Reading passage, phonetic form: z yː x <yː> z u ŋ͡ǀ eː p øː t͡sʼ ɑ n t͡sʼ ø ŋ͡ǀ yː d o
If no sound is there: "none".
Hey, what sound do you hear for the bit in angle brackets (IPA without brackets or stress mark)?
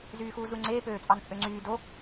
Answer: uː